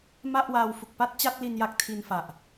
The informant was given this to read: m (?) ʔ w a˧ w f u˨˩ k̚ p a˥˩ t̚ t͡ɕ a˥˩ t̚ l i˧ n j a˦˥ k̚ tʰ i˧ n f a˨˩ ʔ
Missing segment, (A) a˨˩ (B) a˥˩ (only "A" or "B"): B